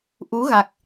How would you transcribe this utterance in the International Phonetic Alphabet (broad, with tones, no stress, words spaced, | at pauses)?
ʔu˨˦ɣa˨˩k̚